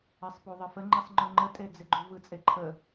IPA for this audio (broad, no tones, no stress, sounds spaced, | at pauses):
ɛ sˤ p u ðˤ ɪ f ə ŋ͡ǃ i sˤ ŋ͡ǃ ʊ ŋ͡ǃ ə tʼ e d͡z ɪ ɡ͡ǃ u v ɯ t͡sʼ e ǃʰ ə